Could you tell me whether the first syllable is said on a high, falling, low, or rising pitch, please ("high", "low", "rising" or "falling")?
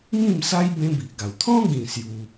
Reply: falling